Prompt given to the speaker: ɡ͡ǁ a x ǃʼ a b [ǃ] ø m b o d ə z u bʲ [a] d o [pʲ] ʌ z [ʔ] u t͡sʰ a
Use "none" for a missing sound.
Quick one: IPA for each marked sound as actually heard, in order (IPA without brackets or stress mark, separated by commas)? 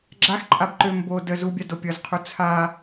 ǃ, a, pʲ, qʰ